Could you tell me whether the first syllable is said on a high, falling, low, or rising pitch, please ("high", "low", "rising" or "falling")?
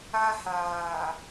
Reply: high